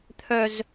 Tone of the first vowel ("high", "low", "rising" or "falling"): high